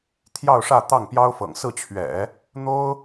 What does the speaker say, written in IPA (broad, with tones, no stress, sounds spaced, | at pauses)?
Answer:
t̪ʰ j ɑ˥˧ ʊ̯ ʂ ä˥˧ t̪ ɑ˥˩ ŋ p j ɑ˥ ʊ̯ f ɤ̰˨˩ ŋ s ɹ̩˥˩ t͡ɕʰ ɥ ɛ̰˨˩˦ | n̪ o˥ ʊ̯